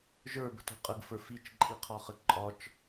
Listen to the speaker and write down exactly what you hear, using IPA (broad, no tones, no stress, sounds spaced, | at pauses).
ʒ ə˞ b ə̤ t o̤ qʼ ə ɡ f ə˞ f i t͡ʃ ǃʼ i qʰ ɒ χ ə ǃʼ ɒ t͡ʃ